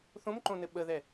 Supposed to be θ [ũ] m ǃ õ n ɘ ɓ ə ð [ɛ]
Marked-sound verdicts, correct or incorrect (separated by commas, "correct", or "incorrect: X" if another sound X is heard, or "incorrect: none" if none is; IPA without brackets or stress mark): incorrect: õ, correct